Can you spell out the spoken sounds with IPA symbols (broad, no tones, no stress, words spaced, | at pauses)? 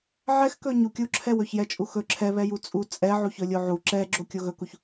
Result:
ʕɛxkɵ ɲukʲuǁʰɛw ɵçjɛt͡ʃʼuxɵ ǁʰɛβɛju t͡sʼu t͡sʼɛ ʕuçɵlʲoʕu ǁɛɡ͡ǁo kʲoɣɵkuç